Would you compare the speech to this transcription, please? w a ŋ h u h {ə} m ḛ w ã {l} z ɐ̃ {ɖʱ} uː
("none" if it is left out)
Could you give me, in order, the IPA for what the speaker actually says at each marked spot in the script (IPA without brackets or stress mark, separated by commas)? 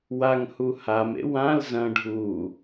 a, l, ɖʱ